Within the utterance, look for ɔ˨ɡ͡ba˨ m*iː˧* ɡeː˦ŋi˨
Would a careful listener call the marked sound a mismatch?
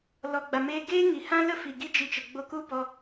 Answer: yes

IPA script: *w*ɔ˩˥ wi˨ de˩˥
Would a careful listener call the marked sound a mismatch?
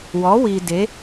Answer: no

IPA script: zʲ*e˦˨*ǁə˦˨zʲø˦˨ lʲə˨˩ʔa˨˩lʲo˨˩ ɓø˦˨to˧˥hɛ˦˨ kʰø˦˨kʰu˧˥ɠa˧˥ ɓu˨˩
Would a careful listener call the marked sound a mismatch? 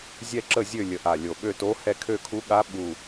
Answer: yes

